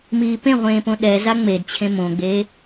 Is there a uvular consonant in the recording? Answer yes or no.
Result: yes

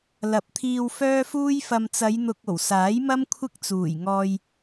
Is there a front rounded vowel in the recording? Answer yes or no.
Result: yes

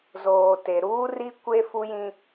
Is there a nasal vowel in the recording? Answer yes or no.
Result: yes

